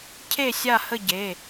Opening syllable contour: falling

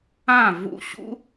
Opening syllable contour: falling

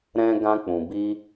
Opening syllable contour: high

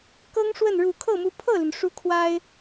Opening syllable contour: high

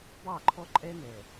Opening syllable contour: falling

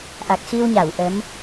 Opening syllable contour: low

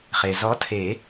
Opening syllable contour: low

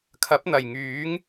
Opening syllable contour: rising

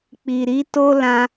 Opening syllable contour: low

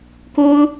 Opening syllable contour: high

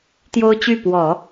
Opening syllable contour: high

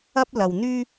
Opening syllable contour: high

